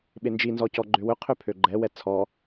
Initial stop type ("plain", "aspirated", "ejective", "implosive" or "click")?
implosive